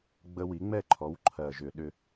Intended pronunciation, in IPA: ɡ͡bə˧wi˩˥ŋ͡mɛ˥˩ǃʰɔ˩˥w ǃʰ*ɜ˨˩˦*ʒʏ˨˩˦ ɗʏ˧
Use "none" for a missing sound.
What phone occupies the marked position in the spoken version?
ɜ˨˩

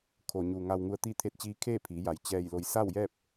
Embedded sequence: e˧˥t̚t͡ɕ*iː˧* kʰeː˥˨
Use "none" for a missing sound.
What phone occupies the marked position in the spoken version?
iː˧˥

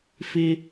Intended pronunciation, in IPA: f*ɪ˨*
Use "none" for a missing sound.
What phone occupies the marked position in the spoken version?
ɪ˦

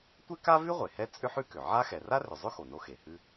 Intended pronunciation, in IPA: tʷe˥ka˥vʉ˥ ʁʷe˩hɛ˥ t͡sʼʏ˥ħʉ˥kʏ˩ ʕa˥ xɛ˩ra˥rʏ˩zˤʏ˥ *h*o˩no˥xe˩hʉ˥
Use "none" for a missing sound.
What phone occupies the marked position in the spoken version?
x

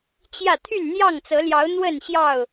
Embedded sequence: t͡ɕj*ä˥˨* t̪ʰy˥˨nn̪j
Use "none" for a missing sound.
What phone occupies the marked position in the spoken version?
ä˥˨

